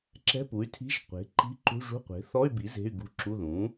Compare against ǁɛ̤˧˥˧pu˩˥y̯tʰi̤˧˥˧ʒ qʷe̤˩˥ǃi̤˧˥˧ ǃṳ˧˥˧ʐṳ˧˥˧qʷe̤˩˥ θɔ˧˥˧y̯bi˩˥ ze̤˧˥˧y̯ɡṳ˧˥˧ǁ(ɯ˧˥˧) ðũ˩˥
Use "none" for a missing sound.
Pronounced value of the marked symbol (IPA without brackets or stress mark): u˧˥˧